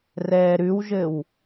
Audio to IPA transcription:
r ɛː ɾ ʉ w ʒ ɘ w

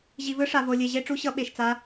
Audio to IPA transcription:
ʑ i˧ v ɯ˦˥ ʂ a˧ v o˧ lʲ e˧ ʑ e˦˥ ʈ͡ʂ u˦˥ ɕ ʌ˦˥ ɓ e˧ ʃ t͡s a˦˥

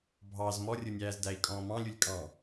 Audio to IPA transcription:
bʱ ɑ z m ɔ rʲ ʊ nʲ æː z d æ i̯ kʼ ɔ̃ː m ɑ̃ lʲ u lʲ kʼ ɑ̃

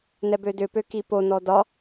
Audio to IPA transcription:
n ɛ b ø d ʏ p ø k i p o n ɔ d ɒ

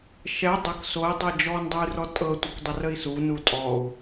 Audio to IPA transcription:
ʃ ɛ dˤ ə k s o i̯ dˤ ɛ d͡ʒ ɔ n dˤ u y̯ r ɔ tʼ ɤ tʷ ə k dˤ ə r ə i̯ s u n u tʼ ɔ u̯

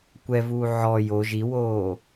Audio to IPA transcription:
kʷ ɛ v uː ʕ ɔ j o ʒ i w oː

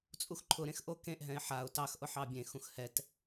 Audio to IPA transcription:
t͡sʼ u x ǃʰ ʊ ɾ ẽ x ʔ o k ẽ ʔ ɦ ɛ̃ ɪ̯ ħ a ʊ̯ t ɑ x ʔ ʊ ħ ɑ bʲ ẽ x ũ x h ɛ t

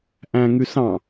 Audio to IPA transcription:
ʔ æ̃ ŋ y s ɑ̃

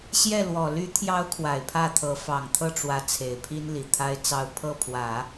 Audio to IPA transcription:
ɕ j ɛ˥˩ l w ɔ˨˩ l y˧˥ t̪ʰ j ɑ˧˥ ʊ̯ kʰ w a˨˩ ɪ̯ pʰ ä˥˩ t̪ʰ ɤ˧˥ f ɑ˨˩ ŋ t̪ʰ ɤ˥˩ ʈ͡ʂ w ä˧˥ t͡sʰ e˨˩ ɪ̯ pʰ i˥ n l i˨˩ t̪ʰ a˥ ɪ̯ t͡s ɑ˥˧ ʊ̯ pʰ ɤ˥˩ pʰ w ä˨˩˦

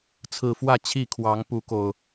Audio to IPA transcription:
t͡sʰ ɹ̩˨˩ f w ä˥˨ t͡ɕʰ i˥˨ kʰ w ɑ˨˦ ŋ p u˨˦ k o˨˩ ʊ̯

